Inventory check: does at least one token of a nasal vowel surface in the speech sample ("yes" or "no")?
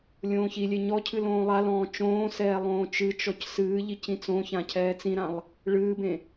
yes